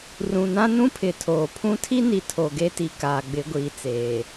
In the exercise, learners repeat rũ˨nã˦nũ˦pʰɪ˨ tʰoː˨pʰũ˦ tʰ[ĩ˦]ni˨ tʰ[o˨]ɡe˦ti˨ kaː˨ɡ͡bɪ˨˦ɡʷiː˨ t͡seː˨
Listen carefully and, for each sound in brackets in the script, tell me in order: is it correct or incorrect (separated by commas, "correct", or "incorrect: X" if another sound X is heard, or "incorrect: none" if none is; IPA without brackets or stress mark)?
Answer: incorrect: i˦, correct